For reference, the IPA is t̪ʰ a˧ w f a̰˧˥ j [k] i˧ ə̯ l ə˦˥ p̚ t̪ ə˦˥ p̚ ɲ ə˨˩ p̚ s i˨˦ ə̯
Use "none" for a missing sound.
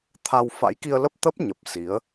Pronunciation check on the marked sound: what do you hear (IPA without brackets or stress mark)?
k